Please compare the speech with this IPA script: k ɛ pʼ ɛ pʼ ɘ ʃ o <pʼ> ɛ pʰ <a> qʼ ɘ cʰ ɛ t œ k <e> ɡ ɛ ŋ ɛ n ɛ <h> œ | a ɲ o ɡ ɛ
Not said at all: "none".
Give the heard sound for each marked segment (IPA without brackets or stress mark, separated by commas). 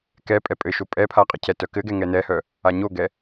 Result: pʼ, a, ɘ, h